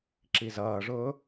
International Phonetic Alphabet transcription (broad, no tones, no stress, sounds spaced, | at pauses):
ǁ i z ʌː ʐ ʊː